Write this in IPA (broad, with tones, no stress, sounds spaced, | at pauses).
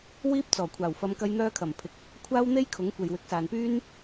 w iː˥ p̚ t͡s ɔː˨˩ kʷʰ aː˨˩ w f ɐ˨˧ m k ɐ˧ j n̪ œː˧ kʰ ɐ˨˩ m pʰ ɪ˨˥ k̚ | kʷʰ aː˥ w n̪ e˥ j kʰ ʊ˨˥ ŋ kʷ e˨ j w ɪ˨˥ k̚ s aː˨ n p yː˥ n